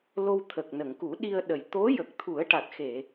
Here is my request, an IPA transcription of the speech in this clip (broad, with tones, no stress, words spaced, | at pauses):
lo˧wt̪ʰə˨˩k̚nə˨˩˨ŋ ku˨˩˦ɗi˧ə̯ɗə˨˩j t̪o˧˥jə˨˩k̚ t̪ʰu˨˩˦ə̯ʈa˨˩t̚xe˨˩˨